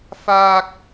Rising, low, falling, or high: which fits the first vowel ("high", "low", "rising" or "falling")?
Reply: high